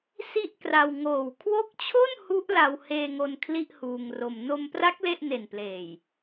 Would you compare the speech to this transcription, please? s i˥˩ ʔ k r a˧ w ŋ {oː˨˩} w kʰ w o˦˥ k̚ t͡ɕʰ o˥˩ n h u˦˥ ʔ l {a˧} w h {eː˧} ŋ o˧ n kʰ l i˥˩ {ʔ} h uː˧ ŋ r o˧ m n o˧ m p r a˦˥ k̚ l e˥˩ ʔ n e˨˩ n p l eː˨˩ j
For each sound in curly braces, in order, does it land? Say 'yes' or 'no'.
yes, yes, yes, yes

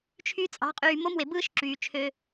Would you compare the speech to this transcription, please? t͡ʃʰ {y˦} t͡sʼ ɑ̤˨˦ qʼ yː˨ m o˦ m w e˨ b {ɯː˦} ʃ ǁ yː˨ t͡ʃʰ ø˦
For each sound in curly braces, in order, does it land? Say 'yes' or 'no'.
yes, yes

